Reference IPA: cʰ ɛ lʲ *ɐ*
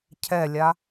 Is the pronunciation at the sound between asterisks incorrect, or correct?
incorrect